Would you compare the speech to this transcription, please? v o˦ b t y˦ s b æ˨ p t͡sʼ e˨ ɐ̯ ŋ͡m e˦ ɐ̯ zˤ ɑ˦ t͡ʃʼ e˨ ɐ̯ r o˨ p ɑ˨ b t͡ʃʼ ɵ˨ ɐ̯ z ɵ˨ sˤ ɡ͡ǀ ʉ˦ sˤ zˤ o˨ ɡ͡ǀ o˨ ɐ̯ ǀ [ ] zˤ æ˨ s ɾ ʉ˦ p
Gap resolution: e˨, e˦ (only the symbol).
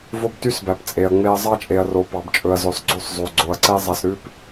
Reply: e˦